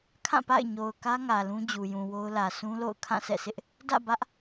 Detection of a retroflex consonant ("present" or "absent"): absent